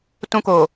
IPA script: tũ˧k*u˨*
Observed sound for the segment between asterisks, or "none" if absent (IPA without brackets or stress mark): o˨